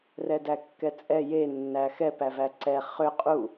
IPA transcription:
r ɛ d æ kː ɛ t͡sʼ ɛ j e nː æ x ɛ p æ v æ ǀ ɛ χ ʏ qʼ u

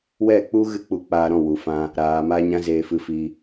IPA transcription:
w ɛ˦˨ k͡p u˦ ɣ ɨ˦ k͡p u˧ k͡p aː˧ ɾ ɔ̃˦˨ w u˨ f ã˧ | ɾ aː˨ m a˧ ɲ ã˦ z eː˧ f ɨ˧ f iː˧

